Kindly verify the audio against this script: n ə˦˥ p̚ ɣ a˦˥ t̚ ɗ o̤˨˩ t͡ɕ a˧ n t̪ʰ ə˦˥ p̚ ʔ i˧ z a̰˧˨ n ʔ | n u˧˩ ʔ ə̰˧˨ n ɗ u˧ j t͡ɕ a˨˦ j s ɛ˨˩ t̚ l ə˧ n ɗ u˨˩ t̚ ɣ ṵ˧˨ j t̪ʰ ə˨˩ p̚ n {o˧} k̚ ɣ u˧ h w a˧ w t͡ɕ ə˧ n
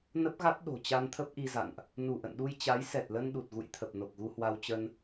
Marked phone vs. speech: incorrect: o˨˩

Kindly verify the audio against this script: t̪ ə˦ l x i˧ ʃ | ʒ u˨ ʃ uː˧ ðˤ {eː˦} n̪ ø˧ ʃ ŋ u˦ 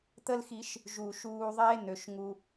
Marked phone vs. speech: correct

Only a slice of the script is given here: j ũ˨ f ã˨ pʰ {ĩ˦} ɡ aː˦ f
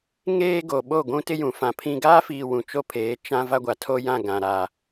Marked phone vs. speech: correct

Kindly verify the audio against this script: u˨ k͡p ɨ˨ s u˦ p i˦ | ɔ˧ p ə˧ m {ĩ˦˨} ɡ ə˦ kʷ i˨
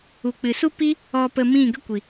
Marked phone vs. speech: correct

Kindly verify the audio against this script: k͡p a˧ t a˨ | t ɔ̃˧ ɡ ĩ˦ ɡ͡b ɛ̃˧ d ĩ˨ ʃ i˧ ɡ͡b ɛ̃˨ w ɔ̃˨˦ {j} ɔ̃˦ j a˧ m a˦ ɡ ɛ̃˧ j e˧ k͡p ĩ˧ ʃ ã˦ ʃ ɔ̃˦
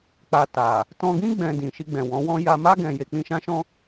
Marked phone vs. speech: incorrect: w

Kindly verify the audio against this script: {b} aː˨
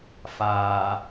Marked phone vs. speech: incorrect: f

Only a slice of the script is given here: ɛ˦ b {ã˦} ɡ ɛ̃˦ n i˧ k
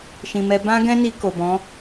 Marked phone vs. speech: correct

